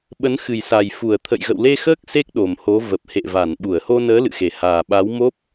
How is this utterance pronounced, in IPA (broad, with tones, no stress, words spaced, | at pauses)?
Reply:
ɓə˨˦nxɨ˨˩jsa˨˩j fu˧˩ə̯t̪ʰə̰˧˨jɣə̰˧˨w le˧xəː˦˥k̚ se˦˥k̚ ɗo˨˩mho˨˦ və˨˩p̚hḛ˧˨ va˧˩nɓu˧˩ə̯ho˧nəː˨˦ lɨ̰˧˨xe˧˩ haː˨˩ɓa˨˦wmo˦˥p̚